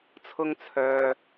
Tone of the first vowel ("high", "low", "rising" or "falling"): high